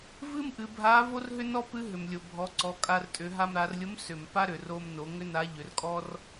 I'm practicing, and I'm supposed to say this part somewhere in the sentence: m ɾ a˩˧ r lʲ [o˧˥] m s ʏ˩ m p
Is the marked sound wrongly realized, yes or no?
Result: no